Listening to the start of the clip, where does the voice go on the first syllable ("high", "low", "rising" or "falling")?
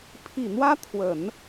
low